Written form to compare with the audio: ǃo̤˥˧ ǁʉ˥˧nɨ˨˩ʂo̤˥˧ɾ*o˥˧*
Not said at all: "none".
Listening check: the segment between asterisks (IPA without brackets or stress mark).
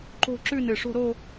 o˥˧